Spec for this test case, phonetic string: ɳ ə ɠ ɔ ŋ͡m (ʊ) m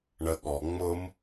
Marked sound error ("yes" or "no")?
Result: no